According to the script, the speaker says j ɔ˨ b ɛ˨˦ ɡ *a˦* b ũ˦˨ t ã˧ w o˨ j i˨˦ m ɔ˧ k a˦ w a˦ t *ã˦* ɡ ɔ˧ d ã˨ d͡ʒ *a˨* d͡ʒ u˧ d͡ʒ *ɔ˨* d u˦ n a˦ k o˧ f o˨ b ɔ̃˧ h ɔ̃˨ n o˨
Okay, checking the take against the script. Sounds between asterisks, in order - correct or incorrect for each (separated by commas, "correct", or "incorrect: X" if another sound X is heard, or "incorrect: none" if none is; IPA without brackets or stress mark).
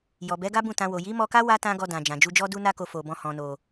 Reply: correct, correct, incorrect: ã˨, incorrect: ɔ˦